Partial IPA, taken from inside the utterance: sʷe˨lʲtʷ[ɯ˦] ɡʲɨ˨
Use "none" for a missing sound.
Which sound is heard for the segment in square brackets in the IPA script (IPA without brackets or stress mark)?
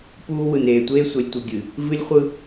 ɯ˨